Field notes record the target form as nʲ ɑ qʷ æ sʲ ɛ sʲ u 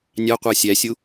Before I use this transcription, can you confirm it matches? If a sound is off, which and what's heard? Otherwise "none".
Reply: ɛ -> æ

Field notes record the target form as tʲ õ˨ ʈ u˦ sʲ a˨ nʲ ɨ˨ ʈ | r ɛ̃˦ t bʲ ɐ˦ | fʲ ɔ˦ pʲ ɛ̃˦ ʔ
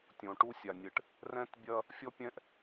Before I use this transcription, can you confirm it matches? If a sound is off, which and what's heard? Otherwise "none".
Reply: none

